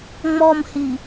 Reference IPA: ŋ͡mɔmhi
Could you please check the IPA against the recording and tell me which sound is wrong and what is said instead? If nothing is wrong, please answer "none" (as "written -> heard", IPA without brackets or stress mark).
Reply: none